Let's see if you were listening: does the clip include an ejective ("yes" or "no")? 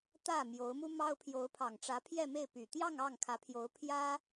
no